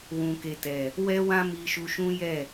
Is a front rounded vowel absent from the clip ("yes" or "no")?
yes